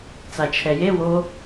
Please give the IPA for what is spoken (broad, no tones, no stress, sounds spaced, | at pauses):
t͡s a t͡ʃʰ ɛ j e w o